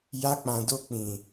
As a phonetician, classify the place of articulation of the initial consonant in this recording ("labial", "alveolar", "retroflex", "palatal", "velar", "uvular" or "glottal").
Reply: palatal